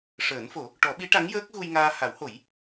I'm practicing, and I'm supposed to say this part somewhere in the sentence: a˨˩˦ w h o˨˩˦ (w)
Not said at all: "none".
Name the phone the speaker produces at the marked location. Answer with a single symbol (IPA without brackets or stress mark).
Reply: j